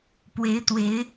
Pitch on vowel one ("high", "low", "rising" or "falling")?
rising